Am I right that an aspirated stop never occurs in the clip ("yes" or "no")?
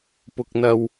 yes